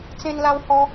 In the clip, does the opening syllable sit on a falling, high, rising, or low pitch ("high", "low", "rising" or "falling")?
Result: high